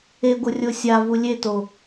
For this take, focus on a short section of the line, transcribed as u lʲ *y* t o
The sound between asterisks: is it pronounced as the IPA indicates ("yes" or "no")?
no